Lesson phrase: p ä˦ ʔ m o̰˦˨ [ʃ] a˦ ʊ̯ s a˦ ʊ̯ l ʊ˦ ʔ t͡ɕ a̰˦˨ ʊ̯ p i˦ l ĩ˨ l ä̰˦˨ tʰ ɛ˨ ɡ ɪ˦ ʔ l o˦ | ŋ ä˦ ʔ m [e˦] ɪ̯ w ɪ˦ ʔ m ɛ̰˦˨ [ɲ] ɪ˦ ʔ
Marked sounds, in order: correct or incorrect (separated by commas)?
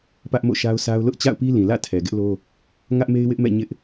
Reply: correct, correct, correct